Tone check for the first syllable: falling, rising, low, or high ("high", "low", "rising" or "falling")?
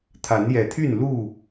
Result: rising